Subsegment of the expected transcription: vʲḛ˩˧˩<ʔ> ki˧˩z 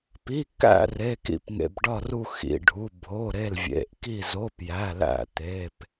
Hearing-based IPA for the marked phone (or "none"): ʔ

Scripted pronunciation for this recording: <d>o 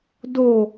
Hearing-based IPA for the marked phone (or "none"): d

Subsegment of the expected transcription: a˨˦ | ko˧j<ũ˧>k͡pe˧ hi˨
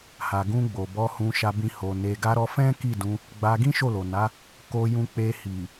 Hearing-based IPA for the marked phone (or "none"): ũ˧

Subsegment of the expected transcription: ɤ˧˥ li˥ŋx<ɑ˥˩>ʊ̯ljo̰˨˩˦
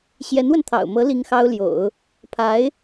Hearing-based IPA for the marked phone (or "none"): ɑ˥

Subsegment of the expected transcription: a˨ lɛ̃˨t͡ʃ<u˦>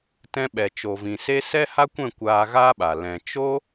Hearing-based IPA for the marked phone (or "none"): o˦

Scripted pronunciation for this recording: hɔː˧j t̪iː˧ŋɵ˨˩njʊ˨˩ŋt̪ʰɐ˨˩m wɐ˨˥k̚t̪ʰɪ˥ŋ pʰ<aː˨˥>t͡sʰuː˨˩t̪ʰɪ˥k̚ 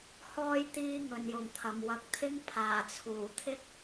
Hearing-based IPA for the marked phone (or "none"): aː˨˩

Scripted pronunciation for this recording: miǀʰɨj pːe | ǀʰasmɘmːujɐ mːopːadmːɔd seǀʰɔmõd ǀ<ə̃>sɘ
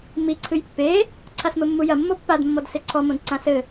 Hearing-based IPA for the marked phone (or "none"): ã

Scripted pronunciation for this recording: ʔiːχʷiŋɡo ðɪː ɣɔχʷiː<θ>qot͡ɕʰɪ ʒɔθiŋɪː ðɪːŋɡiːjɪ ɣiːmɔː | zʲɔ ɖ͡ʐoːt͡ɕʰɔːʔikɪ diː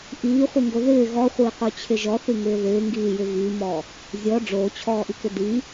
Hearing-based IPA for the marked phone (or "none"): none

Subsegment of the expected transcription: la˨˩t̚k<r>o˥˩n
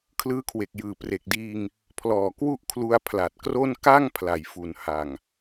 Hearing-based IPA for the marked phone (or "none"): r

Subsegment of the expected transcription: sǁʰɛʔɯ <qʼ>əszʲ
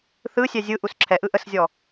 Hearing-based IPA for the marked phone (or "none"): ʔ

